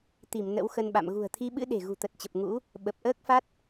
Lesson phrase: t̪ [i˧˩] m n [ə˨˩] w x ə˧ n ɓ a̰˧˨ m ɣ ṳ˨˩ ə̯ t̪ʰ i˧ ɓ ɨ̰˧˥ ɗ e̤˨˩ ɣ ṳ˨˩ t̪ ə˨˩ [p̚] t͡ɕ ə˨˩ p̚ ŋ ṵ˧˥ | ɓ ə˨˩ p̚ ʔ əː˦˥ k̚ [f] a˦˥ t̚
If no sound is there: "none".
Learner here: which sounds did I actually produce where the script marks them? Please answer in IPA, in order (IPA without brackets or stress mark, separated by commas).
i˧˩, ə̰˧˥, t̚, f